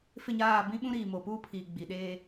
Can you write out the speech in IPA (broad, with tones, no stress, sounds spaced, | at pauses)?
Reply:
f ɪ˦˨ ɲ aː˦˨ b ĩ˦ ɓ ũ˦ ɾ iː˨ m oː˨ p uː˦ pʰ iː˨ ɡ͡b i˨ ɗ eː˦